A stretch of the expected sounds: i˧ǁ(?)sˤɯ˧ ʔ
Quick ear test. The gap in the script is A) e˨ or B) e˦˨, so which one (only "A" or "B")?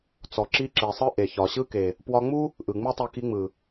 A